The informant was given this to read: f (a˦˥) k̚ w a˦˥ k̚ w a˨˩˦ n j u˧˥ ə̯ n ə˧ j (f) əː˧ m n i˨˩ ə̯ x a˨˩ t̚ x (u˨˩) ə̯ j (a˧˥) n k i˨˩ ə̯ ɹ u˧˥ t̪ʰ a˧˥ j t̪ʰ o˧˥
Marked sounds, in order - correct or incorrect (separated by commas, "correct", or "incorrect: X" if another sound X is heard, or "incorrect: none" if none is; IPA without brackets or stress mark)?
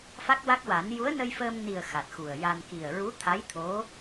correct, correct, correct, incorrect: a˧